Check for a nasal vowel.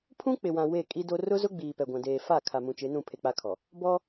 present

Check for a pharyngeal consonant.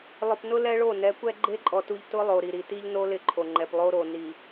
absent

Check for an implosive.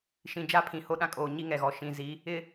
present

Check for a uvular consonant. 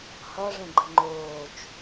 absent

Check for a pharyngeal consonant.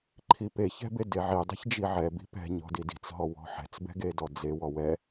present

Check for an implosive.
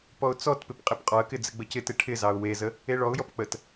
absent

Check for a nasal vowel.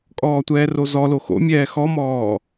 absent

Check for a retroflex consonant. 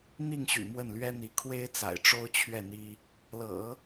present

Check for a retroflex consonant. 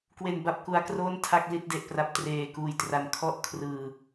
absent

